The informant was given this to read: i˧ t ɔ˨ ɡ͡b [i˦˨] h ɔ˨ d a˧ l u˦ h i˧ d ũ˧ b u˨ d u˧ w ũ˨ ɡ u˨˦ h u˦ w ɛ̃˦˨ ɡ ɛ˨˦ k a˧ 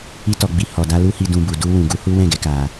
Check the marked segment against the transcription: incorrect: i˨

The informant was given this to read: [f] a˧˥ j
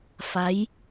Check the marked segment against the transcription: correct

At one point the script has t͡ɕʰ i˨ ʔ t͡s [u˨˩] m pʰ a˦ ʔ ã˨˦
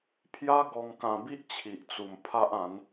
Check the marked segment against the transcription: correct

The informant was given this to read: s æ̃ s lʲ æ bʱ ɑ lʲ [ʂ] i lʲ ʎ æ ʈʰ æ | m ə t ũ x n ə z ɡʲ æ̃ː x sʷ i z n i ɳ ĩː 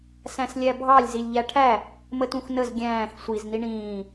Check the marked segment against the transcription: incorrect: z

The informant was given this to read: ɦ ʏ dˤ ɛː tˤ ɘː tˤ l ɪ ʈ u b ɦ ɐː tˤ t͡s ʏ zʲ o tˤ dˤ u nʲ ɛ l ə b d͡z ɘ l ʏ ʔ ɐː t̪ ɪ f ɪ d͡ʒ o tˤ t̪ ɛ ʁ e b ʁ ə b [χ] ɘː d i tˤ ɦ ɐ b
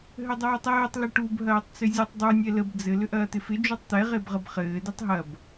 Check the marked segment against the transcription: correct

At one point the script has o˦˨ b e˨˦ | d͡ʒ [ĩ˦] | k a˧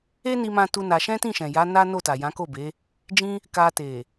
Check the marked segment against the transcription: correct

